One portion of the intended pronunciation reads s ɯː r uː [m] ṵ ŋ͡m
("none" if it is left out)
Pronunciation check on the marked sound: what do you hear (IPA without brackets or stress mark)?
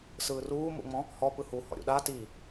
m